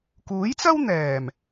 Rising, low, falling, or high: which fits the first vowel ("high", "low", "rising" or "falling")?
rising